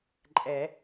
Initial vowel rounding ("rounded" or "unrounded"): unrounded